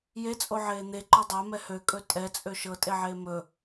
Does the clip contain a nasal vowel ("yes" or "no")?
no